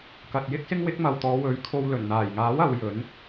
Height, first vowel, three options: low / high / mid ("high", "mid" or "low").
low